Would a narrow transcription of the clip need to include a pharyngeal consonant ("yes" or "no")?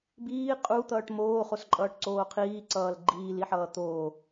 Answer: yes